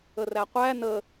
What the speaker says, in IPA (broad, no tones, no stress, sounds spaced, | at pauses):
ə r æ qʷ æ n ə